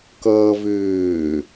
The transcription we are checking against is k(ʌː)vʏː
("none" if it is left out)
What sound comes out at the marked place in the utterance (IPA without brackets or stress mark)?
ʌː